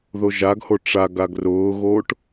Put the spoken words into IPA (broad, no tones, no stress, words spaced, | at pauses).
ðoʒaɡho ʈ͡ʂa ɡaɡrʊːɣoːʈ